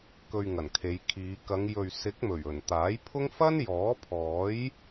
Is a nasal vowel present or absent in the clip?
absent